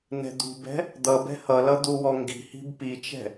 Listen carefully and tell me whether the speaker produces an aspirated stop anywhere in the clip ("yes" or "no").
no